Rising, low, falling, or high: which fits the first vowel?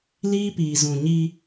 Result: high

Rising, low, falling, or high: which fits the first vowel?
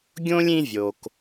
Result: high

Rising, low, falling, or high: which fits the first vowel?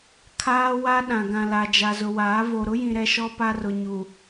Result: high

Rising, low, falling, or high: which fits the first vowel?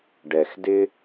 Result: low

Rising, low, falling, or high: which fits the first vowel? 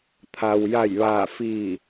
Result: low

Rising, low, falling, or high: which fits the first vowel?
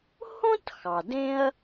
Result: high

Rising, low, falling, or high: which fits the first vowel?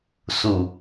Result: low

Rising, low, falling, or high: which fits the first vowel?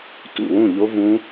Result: falling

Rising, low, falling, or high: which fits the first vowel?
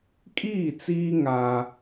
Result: falling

